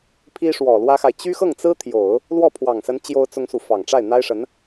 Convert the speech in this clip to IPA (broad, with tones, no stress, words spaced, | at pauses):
pʰi˥ʂwɔ˨˩lwä˥xa˨ɪ̯ t͡ɕy˥xɤ˥˩ŋt͡sɹ̩˥ t̪ʰjo˨˩˦ʊ̯ | lwɔ˥˩pʰwɑ˨˩ŋsə˧˥n t͡ɕjo˥ʊ̯t͡sʊ˥ŋsu˨ fɑ˨˩ŋʈ͡ʂa˥˩ɪ̯n̪a˥ɪ̯ʂə˧˥n